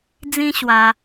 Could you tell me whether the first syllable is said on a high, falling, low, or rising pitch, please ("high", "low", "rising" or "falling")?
high